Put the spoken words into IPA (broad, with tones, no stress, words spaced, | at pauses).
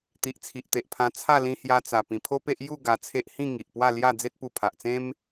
t̪i˨ʔt͡sʰi˨ʔt̪e˨ʔpʰã˧ t͡sʰa˥˧lĩ˧hja˧t͡sa˨˩ pĩ˨˩pʰo˦pe˦ʔ ju˥˧ ɡa˧t͡sʰe˦ʔ hĩ˥˧ ŋi˨ʔpwa˥˧ lja˥˧ d͡ze˦t̚pu˧pʰa˨ʔt͡sẽ˦m